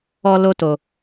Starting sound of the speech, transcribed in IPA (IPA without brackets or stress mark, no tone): ɔ